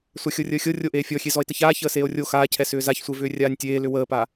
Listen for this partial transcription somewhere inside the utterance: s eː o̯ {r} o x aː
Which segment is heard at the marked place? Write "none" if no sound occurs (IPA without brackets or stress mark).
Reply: rʲ